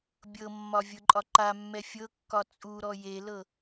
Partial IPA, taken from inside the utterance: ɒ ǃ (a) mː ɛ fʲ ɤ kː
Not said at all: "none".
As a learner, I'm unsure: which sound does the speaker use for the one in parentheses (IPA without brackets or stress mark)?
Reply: a